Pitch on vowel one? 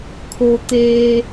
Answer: low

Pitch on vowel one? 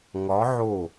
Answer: rising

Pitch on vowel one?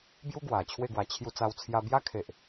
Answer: high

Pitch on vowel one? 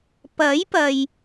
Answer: rising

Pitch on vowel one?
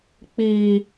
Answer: high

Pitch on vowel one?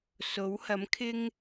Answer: rising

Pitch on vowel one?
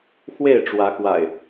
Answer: falling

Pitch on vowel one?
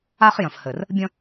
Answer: high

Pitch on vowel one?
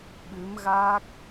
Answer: rising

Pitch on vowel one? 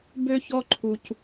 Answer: high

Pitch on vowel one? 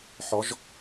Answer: rising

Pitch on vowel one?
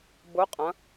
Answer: rising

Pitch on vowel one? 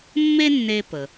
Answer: high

